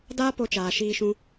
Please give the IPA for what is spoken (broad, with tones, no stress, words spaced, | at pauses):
daː˦ po˦t͡ʃaː˧ ʃiː˦ʃũ˦